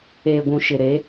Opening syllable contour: low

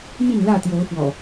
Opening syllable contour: falling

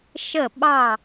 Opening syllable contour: falling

